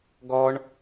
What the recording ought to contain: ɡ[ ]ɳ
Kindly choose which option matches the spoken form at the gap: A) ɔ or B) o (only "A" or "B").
A